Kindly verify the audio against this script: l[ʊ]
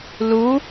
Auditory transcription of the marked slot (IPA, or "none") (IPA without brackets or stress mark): u